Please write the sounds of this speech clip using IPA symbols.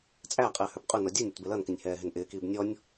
t͡sʼ æ qʼ ɪː h ə˞ b qʼ u n ɔ dʲ u nʲ ʌ t b ɪ l ʌ n k ɪ nʲ h ɛː ɦ ɪ n ʔ ɪː k iː b nʲ ɔ nʲ

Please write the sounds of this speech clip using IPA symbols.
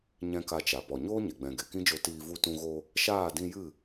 ɲ ɛ̃˦ k a˧ t͡ʃ a˨ p ɔ˨ ɲ oː˦ ɲ e˨ ɡ͡b ɛ̃˨ ɡ e˨ k ĩ˦ d͡ʒ o˧ t iː˧ v u˧ t ũ˧ ɣ o˧ | ʃ aː˦˨ d ĩ˧ j ɨ˦˨

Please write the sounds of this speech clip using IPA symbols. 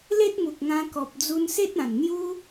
l e˦ t̚ m u˨ k̚ ŋ ã˧ k ɔ˨ p̚ d͡z u˧ n s e˦ t̚ ã˨˩ n n̪ j u˦

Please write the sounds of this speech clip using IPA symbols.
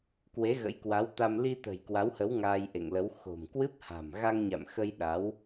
k w e˨˦ ɣ ə̰˧˥ j k w a˨˦ w t̪ a˧ m l i˧ t̪ ə̤˨˩ j k w a˨˦ w h ə˨˦ w ŋ aː˧ j ʔ ḛ˧˨ ŋ l ə˨˦ w x o̤˨˩ m k w ɨ˦˥ p̚ h a̤˨˩ m ɣ a˧ ŋ ɲ a̰˧˨ m x ə˧ j ɗ a˨˦ w

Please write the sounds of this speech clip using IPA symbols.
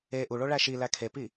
e ʔ u ɭ o ɭ æ ʃ i l æ kʰ e p i

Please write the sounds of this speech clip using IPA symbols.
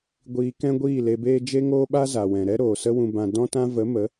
ɡʷ iː˧ k ɛ̃˦ ɡʷ iː˦˨ l e˧ b eː˦ d͡ʒ e˦ ŋ oː˦ ɓ a˦ z a˨ w ɛ̃˨ ɾ ɛ˦ ɾ oː˨ s ə˦ w ũ˧ b ã˧ d ɔ̃˦ t ã˦ v ə˨˦ m ə˨˦

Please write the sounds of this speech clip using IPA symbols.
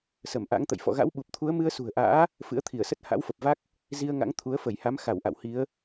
s ə˧˩ m ʔ a̰˧˥ ŋ t̪ ə̰˧˨ j f ɔ̰˧˨ ɣ a̰˧˥ w ɓ u˨˩ p̚ t̪ʰ u˨˦ ə̯ m ɨ˧ ə̯ s ṳ˨˩ ə̯ ʔ a̰ː˧˥ | f ɨ̰˧˥ ə̯ t̪ʰ i˧˩ ə̯ s ə˦˥ t̚ h a̰˧˥ w f ə˨˩ p̚ v a˦˥ k̚ | z i˧ ə̯ ŋ a̰˧˥ ŋ t̪ʰ u˨˦ ə̯ f ə˧˩ j h a˨˦ m x a˧˩ w ʔ a̰˧˨ w h i˨˦ ə̯

